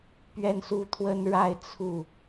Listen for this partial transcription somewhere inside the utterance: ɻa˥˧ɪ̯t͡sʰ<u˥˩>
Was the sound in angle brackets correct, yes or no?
yes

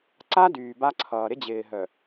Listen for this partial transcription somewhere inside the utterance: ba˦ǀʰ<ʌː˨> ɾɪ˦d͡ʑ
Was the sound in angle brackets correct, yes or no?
yes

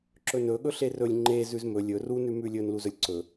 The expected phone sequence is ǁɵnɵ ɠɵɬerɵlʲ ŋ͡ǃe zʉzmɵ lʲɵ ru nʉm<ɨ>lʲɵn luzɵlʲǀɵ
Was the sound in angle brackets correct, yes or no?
no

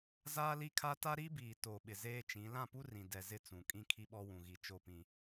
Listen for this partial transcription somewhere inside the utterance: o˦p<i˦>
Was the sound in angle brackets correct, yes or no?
no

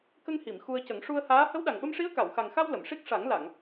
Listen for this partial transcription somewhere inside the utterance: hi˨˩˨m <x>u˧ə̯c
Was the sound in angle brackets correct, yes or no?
yes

